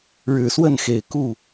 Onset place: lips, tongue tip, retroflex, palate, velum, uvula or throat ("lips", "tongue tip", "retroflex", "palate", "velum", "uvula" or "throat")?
retroflex